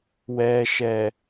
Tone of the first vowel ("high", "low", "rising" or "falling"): low